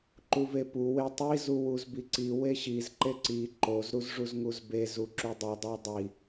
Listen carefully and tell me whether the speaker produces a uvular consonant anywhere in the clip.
no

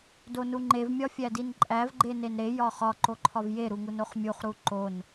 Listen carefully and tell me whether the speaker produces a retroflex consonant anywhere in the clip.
no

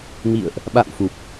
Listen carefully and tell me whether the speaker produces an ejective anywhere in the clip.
no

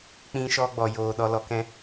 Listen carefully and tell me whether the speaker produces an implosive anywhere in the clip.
yes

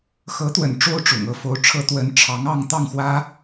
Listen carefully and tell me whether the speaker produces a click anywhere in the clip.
no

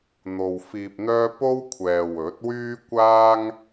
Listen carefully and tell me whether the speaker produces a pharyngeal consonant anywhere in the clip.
no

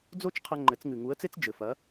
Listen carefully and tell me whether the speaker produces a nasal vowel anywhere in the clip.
no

